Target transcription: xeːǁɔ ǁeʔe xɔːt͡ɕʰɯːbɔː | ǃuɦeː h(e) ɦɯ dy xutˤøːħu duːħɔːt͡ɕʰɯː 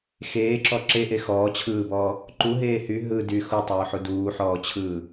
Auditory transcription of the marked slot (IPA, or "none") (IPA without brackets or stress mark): y